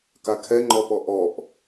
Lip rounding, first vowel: unrounded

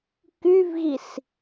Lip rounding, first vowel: rounded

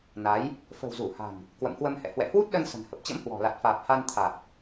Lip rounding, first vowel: unrounded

